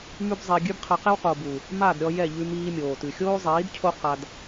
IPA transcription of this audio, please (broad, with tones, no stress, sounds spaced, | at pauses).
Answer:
m ʉ˦ b zˤ ɛ˧ ɡʲ ʉ˦ b qʰ a˧ q ɛ˦ w q o˨ b u˨ | m a˦˨ d ɾʲ ɔ˧ j ɛ˦˨ ʎ ʉ˧ m iː˧ mʲ oː˨ t ʉ˨ xʲ oː˦ zˤ iː˨˦ d cʰ o˦ q a˧ d